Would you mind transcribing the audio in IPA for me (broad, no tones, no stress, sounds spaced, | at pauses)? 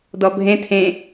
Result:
d ɔ bʱ ẽ tʰ ẽ